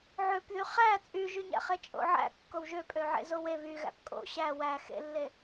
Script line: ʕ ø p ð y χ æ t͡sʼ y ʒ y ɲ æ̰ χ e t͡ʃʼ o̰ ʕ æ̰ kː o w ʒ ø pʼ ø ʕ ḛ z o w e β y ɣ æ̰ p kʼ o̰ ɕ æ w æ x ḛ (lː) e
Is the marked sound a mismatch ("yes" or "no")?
no